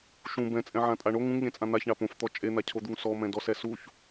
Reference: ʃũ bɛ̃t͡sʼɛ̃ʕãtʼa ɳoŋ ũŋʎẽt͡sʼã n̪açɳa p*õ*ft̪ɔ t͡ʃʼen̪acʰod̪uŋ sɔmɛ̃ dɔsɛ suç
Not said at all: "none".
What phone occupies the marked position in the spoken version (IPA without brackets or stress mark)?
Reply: õ